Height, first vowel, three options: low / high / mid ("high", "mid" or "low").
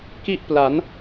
high